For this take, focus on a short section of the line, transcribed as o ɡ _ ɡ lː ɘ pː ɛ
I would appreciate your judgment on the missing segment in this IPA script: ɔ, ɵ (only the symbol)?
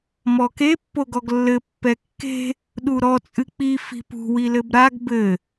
ɔ